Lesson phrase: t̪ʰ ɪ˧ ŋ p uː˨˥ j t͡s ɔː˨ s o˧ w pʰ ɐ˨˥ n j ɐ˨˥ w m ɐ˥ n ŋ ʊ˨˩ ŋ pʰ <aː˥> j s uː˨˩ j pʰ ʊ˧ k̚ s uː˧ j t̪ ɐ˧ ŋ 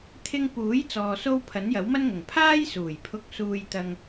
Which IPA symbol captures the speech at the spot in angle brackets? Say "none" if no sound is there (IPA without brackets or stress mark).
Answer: aː˥